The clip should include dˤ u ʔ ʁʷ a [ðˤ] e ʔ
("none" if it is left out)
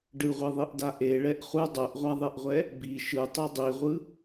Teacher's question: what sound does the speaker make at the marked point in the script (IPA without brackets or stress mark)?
ðˤ